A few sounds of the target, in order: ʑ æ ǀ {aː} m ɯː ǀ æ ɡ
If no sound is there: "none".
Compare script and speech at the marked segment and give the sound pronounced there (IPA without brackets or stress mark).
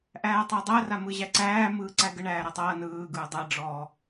æː